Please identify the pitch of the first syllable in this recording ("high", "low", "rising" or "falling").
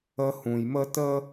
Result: high